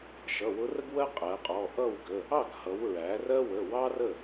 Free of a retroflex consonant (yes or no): yes